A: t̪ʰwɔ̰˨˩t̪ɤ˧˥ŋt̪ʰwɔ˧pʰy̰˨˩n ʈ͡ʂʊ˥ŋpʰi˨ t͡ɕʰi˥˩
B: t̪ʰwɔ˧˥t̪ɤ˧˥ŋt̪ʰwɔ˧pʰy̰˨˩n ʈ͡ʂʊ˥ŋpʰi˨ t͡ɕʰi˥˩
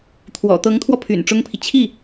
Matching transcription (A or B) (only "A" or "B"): A